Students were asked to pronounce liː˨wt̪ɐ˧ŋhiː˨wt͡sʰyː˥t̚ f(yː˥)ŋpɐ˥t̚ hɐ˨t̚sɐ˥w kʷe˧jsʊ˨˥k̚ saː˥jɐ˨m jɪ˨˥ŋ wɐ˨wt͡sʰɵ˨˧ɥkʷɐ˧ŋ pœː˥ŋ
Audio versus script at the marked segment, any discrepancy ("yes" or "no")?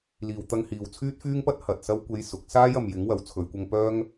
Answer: no